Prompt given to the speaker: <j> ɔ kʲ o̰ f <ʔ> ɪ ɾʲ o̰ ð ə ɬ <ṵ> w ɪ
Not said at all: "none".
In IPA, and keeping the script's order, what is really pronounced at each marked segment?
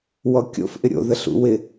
w, ʔ, ṵ

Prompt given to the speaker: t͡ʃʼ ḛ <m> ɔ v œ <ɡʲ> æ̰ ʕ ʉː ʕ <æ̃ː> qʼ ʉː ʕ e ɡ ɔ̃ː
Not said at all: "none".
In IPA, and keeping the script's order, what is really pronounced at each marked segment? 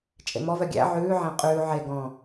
m, ɡʲ, æ̃

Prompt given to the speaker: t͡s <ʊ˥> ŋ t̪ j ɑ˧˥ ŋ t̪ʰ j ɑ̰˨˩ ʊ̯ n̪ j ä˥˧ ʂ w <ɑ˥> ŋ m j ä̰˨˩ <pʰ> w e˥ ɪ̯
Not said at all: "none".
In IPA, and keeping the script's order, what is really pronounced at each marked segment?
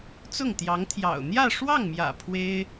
ʊ˥˩, ɑ˥˩, pʰ

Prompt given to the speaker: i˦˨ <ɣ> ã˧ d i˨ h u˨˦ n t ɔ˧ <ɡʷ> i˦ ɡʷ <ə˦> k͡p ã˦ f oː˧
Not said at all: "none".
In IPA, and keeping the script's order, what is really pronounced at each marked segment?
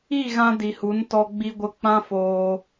ɣ, ɡ͡b, ə˦

